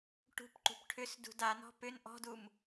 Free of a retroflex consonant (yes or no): no